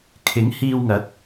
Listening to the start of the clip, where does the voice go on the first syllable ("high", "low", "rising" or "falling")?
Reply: rising